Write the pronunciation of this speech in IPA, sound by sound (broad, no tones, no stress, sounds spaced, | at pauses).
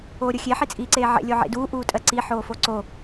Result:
oː ɾʲ o xʲ e ħ i t͡sʼ iː ǀ eː ʕ ḛ lʲ o ʕ ḛ d uː ʔ uː tʼ ɜ ǀ i ħ oː f o ǀ o